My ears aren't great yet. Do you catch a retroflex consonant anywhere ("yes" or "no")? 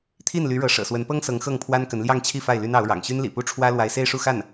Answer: yes